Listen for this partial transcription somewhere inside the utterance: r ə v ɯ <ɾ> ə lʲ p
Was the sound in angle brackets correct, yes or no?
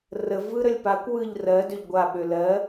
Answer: yes